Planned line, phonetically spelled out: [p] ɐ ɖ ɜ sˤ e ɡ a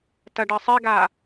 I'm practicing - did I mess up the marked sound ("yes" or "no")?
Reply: yes